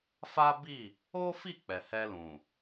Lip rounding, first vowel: unrounded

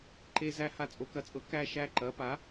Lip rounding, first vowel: unrounded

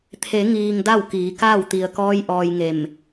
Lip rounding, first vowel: unrounded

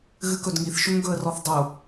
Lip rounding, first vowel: unrounded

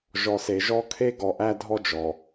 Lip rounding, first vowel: rounded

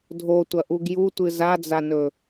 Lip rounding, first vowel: rounded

